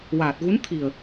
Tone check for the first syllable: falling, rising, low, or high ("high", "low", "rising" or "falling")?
low